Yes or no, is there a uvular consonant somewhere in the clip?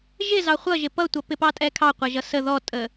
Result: yes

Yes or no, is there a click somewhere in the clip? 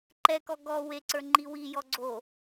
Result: yes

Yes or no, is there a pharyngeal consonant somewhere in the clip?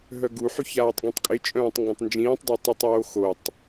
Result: yes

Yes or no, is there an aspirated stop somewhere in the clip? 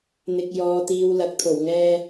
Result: yes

